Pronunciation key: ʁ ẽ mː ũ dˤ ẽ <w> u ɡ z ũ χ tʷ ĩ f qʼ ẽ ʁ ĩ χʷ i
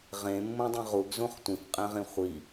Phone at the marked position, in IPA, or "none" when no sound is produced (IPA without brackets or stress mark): ʁ